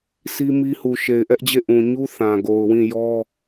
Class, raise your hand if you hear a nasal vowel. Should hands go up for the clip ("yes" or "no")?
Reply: yes